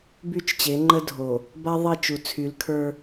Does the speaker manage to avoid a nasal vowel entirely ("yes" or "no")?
yes